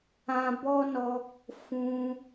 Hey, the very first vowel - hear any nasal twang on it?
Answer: yes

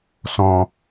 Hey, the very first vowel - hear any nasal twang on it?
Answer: yes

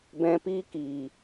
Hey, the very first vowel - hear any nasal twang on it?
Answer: yes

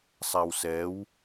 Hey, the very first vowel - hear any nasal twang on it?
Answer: no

